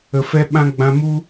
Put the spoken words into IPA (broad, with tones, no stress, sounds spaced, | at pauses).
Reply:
ə˨ f ɛ˧ ɓ ã˧ ɡ͡b ã˧ m u˦